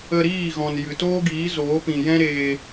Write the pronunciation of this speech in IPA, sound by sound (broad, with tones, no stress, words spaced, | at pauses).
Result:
ə˧ɾiː˦˨ɣɔ̃˨n jɨ˨toː˦ɡiː˨˦ zoː˨˦pĩ˨ jɛ̃˦ɾeː˧